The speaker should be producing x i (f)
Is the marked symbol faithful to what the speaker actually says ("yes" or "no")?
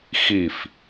yes